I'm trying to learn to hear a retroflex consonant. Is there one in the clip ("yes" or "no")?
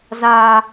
no